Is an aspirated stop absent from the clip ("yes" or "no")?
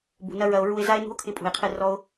no